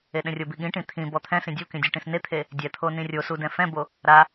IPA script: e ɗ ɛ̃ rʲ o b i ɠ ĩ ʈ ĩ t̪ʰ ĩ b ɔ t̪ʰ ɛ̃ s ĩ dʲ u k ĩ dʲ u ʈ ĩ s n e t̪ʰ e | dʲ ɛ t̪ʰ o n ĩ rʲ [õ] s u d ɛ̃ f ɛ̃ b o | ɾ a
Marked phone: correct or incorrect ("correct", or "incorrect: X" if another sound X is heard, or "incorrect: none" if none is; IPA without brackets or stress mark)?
incorrect: o